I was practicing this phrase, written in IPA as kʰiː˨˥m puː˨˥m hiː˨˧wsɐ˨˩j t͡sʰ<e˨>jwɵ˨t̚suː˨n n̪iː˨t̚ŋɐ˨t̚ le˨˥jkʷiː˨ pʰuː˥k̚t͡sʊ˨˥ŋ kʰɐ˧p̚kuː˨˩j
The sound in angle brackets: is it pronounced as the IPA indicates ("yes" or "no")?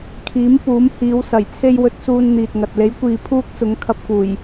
no